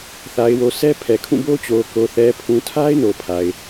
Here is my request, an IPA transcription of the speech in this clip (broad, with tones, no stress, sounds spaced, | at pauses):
θ a˨ ɪ̯ w o˨ sʰ ɛ˦ pʰ ɛ˨ kʰ ũ˦˨ b o˦ t͡ɕ o˨ k o˨ θ ɛ˨ pʰ ũ˨ tʰ a˦ ɪ̯ n o˨ pʰ a˨ ɪ̯